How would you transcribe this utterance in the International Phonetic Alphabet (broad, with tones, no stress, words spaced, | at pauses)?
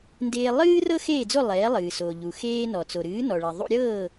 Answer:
ndeː˧lˠɨː˥ rɤ˥xeː˥˩d͡zo˥˩ lˠɛː˩˥lˠɨː˩so˩ʎu˩ xeː˧nɔ˩ t͡so˩ɾɨː˩˥nɔ˩ɭɛ˩ ðˤṵ˧ɾʲɤː˥˩